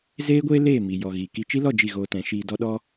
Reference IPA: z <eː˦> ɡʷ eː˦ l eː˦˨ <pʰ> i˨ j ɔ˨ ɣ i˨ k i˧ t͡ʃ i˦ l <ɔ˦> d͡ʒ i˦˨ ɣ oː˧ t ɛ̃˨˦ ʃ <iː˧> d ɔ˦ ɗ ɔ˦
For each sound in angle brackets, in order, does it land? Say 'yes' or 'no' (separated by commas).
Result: yes, no, no, yes